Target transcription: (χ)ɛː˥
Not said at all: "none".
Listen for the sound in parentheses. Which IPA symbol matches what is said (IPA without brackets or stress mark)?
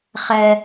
χ